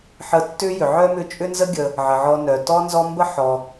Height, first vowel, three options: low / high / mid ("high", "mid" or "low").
mid